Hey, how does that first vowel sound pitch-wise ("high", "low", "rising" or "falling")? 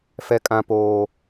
high